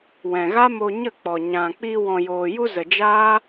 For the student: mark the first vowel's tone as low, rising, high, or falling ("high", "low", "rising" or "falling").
low